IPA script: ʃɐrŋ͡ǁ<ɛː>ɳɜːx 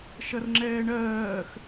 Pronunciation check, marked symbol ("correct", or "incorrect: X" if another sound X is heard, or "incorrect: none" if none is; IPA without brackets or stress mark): correct